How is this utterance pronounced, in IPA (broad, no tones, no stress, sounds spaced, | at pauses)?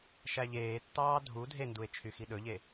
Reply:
ʃ æ ʎ eː tː ɑː dʱ u dʱ e n d u e̯ t͡ʃʰ y x i ɗ ɵ ʎ e